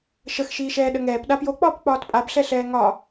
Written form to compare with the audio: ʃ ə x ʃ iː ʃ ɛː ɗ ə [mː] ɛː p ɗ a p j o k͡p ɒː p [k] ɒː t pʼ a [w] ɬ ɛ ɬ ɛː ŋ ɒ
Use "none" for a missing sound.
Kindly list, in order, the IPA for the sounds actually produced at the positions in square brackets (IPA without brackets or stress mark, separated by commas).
ŋ, k͡p, b